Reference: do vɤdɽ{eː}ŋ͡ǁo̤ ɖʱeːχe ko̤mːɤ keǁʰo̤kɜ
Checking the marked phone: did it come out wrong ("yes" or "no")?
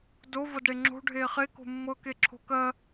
yes